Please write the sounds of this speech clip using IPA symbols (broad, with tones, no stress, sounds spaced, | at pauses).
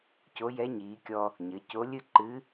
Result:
c o˧˥ j ɛ˧˥ ɲ iː˩˧ kʲ ɔ˧ | ɲ ɘ˩˧ c o˧˥ lʲ ɨ˥ ǃ ɨ˧˥